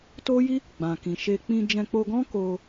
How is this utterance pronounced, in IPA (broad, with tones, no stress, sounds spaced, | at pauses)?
t o˦ j i˦ | ɡ͡b ã˨ k ĩ˨ ʃ e˧ k͡p ĩ˧ d͡ʒ ɛ̃˧ k͡p o˧ ɡ ɔ̃˦ k o˧